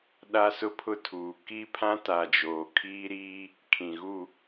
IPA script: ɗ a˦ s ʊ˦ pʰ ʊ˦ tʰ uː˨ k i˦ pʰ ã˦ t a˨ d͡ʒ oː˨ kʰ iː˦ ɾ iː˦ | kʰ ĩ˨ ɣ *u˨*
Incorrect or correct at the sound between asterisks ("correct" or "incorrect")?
incorrect